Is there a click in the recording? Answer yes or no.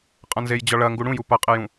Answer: no